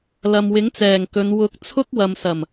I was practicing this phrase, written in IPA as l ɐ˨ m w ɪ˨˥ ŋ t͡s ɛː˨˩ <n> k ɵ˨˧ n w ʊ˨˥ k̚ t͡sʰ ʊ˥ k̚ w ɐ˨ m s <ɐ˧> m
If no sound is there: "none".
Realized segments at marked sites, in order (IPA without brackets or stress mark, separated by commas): ŋ, ɐ˨˩